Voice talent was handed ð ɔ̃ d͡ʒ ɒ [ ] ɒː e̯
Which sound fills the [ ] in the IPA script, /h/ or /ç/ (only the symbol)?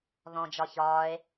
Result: ç